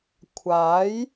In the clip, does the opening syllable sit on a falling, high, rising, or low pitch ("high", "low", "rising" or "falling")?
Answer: rising